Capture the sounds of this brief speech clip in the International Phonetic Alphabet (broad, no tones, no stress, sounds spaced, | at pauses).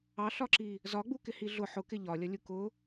ɑ ɬ ɒ ǁ i | z ɒ ɡ͡b u k ɪ h i ɮ ʊ ħ ʊ k ɪ ʎ ɒ lʲ ʌ lʲ u k ʊ